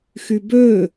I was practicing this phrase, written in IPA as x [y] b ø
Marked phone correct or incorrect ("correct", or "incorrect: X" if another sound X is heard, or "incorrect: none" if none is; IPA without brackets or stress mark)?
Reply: correct